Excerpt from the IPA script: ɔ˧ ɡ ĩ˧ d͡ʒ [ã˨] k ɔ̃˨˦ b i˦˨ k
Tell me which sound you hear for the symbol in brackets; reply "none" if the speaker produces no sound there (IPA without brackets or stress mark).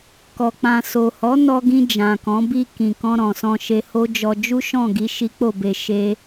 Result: ã˨